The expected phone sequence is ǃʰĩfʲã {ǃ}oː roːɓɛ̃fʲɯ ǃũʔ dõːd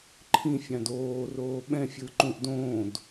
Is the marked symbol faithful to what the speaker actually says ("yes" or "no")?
no